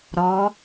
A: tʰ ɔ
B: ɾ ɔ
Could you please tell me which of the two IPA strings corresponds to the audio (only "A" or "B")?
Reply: B